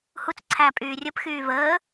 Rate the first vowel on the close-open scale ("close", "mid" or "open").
close